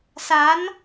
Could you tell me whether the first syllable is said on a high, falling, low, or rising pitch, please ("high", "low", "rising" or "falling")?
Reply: rising